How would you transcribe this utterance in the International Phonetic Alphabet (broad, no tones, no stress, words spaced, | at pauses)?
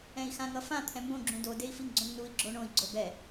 ɛ̃i̯xãŋʌfã t̪ʰɛ̃mbõ ɡ͡ǁũdo dei̯fiŋɡ͡ǀõŋnui̯ ɡ͡ǁoɳõi̯ ɡ͡ǀobɛ